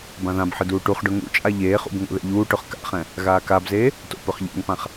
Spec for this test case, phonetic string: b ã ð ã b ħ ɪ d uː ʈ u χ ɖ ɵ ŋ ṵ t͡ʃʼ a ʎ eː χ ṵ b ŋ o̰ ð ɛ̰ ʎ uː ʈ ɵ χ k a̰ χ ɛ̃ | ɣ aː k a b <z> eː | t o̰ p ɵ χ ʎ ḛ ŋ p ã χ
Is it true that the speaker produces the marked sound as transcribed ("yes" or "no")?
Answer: yes